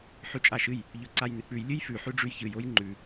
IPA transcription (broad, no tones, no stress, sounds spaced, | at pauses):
ħ ʉ t͡ʃʼ a ʃ ɨ j | ʎ ɵ ǀ a j n ɨ k͡p ʉ j lʲ ɨ j f ʉ ħ ʉ ɖ͡ʐ ʉ j ç ɨ j o j ŋ͡ǃ ʉ